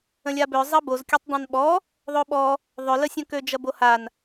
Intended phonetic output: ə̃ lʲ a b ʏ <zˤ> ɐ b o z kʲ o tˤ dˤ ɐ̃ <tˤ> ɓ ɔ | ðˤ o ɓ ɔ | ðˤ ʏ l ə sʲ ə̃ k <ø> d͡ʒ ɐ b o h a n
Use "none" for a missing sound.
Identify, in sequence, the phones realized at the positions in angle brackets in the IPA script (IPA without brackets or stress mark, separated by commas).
zˤ, n, ø